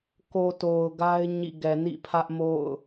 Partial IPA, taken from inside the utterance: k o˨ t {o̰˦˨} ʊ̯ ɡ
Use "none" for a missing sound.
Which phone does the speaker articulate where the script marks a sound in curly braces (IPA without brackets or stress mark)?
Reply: o˨